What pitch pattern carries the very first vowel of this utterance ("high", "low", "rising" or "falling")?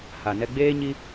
low